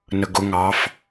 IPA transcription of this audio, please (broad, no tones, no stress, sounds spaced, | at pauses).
n ə ɡ ʊ ŋ ɑ f